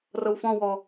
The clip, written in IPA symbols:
r ɤ w f ɔ̃ w ɔ

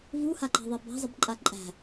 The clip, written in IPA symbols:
v u h a ǃ a̤ ðˤ ɛ b a̤ zˤ ə b ǃʼ a ǃʼ æ̤

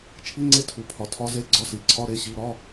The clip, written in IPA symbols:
t͡ʃʰ i˧˥˧ ŋ͡ǀ e˧˥ tʰ u˩˧ pʰ ɒ˩˧ tʰ ɒ˧˥ z e˧˥˧ ɡ͡ǀ ɒ˧˥ s i˩˧ ǀʰ ɒ˧˥˧ ɾ e˧˥˧ ɕ i˧˥˧ ɾ ɒ˧˥˧

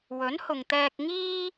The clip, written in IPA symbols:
w ɵ˨˥ n h ʊ˨ ŋ t̪ ɛː˧ k̚ ŋ iː˥

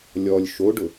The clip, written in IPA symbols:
lʲ ɔ lʲ ʃ o ɖ ʊ

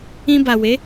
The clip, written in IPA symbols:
ĩ˧ b a˨ w e˨˦

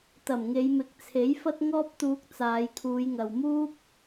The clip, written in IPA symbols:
t̪ ɐ˨˩ m ŋ e˨˧ j m ɪ˨˥ k̚ t͡sʰ e˨˥ j f ɐ˥ t̚ ŋ ɔː˥ p̚ t̪ uː˧ k̚ t͡s aː˨˧ j kʰ uː˨˧ j ŋ ɐ˨ w m uː˥ p̚

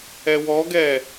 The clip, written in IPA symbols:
ɛ w ɔ ɡ ɛ

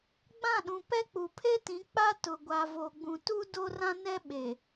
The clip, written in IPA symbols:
ɡ͡b ã˦˨ ɗ ũ˨ p ɛ˦ k͡p u˨ pʰ e˦ t ĩ˨˦ k͡p a˦ t ʊ˨ ɡʷ a˨ v o˨ ɡ͡b ũ˨ t u˦ d o˦ r ã˦ n ɛ˦ ɓ e˨

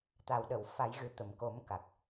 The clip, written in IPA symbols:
t̪ a˨˩ w ɗ ə˨˩˨ w f a˨˩˦ j ɣ ɨ˨˩ t̪ ə˨˩˨ m k o˨˩˦ m k a˨˩ k̚

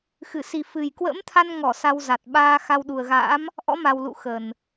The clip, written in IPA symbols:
x ɨ˧˩ s i˨˩ f ɨ˨˩ j k w ə̰˧˥ m t̪ʰ a˧ n ŋ ɔ˧˩ s a˧ w z a˨˩ t̚ ɓ aː˧ x a˧ w ɗ u˨˩ ə̯ ɣ a̰ː˧˥ m | ʔ ɔ̰˧˥ m a˨˩ w l ṵ˧˨ x ə˨˩ n

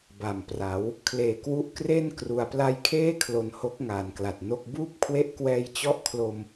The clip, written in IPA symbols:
b a˨˩ m p r a˩˦ w | kʰ l eː˨˩ k w u˦˥ ʔ k r e˥˩ n k r u˩˦ a̯ p l a˦˥ j kʰ eː˥˩ kʰ l o˧ n h o˦˥ k̚ ŋ aː˨˩ n k l a˨˩ t̚ n o˥˩ k̚ b uː˥˩ p̚ kʰ w e˦˥ ʔ k w ɛː˧ j t͡ɕ ɔ˦˥ ʔ kʰ l o˧ m

